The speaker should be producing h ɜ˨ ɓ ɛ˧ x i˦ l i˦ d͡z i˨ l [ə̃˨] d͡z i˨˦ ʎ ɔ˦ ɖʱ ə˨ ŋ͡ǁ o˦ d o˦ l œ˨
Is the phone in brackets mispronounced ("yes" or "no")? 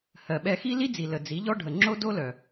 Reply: yes